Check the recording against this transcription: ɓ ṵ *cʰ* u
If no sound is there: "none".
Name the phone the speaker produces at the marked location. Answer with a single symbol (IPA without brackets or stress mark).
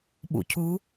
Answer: cʰ